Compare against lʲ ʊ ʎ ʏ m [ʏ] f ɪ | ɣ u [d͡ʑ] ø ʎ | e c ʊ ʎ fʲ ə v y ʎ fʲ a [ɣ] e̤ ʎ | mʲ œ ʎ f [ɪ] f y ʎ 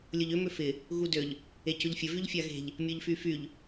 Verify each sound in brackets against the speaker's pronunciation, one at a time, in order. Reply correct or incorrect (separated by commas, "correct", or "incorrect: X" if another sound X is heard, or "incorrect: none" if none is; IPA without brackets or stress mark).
correct, incorrect: d, correct, incorrect: y